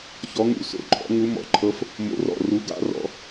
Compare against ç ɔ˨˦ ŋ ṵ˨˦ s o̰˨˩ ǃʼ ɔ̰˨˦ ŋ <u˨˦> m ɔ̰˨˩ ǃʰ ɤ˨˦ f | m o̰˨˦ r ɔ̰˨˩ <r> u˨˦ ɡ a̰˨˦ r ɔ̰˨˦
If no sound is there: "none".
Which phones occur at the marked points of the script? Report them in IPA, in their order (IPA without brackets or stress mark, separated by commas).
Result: u˨˦, r